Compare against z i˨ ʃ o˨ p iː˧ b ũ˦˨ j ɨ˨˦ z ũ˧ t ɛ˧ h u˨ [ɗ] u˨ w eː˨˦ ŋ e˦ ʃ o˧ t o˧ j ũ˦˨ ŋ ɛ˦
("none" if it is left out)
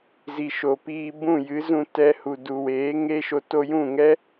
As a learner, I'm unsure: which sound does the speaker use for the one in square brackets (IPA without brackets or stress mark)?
d